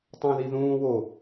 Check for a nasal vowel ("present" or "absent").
present